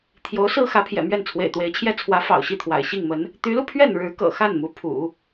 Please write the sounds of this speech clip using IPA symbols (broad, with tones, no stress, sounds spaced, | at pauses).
t̪ʰ j o˧˥ ʊ̯ s ɹ̩˥ x ä˧˥ pʰ j ɛ̰˨˩ m ɥ ɛ˥˩ n t͡sʰ w ḛ˨˩ ɪ̯ t̪ w e˧˥ ɪ̯ t͡ɕʰ j ɛ˥ t͡sʰ w ä˧˥ f ɑ̰˨˩ ʊ̯ ɕ i˥˩ t̪ʰ w a̰˨˩ ɪ̯ ɕ i˥˩ ŋ m ə˧˥ n | t̪ y˧˥ l u˧ pʰ ɥ ɛ˥˩ n ɻ ɻ̩˧˥ k ɤ̰˨˩ x a˥˩ n m u˧˥ pʰ ṵ˨˩˦